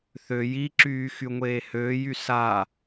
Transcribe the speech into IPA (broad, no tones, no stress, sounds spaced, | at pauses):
θ ø j i ǁ yː x y ŋʷ eː h øː j y s a